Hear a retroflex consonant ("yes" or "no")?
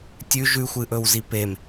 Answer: no